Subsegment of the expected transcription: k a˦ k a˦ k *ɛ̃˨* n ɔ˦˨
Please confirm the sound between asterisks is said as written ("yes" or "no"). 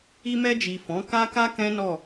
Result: no